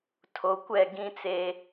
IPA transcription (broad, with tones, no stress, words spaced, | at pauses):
tʰo˨kʷɛ˦˨ ɡĩ˦t͡seː˦